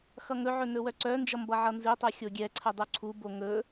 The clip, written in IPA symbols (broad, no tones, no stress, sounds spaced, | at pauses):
x ʌ ŋ ɵ ʕ ɵ n ɵ w œ ǀ œ n d͡ʒ ʌ m b ʌ ʕ ʌ n z i tˤ œ xʲ o ɡʲ ɛ ǀʰ ə dˤ u ǀʰ u b o ŋ ɵ